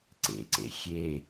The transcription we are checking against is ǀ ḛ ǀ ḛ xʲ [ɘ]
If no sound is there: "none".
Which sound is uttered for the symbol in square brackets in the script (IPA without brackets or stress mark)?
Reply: e